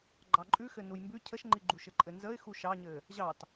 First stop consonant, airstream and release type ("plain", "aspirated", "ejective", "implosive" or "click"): click